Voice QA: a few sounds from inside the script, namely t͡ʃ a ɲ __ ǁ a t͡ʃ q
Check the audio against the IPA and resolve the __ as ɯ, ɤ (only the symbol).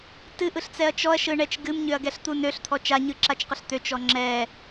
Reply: ɯ